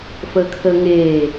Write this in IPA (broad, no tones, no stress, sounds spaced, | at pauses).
f əː kʰ əː ŋ eː